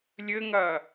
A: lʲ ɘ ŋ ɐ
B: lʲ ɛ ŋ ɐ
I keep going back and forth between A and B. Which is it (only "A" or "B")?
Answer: A